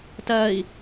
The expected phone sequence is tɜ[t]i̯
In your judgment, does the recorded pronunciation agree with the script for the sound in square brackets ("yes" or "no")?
no